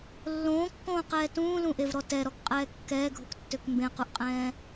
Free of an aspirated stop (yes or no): yes